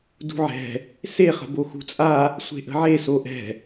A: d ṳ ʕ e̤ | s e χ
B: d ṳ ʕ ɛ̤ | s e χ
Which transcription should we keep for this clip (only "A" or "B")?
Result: B